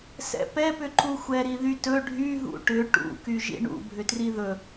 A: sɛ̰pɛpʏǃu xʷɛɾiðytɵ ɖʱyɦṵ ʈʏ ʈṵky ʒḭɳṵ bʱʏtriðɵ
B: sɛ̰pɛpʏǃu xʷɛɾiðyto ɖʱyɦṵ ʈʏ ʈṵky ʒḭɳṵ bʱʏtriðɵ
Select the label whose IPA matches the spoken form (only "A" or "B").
A